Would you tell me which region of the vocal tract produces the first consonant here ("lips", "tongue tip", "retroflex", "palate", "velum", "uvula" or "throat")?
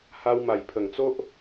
throat